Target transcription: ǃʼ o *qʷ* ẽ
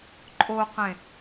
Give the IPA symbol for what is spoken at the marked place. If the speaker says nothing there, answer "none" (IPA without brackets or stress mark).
q